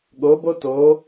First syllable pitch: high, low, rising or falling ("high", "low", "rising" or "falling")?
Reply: rising